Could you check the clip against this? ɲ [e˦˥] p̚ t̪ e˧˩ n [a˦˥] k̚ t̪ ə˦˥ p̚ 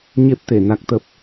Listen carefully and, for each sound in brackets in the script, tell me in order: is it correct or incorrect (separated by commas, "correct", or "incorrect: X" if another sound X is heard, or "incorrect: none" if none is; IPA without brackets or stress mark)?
correct, correct